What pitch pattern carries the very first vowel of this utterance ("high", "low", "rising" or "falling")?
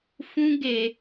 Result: high